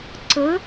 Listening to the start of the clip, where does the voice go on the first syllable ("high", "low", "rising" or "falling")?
rising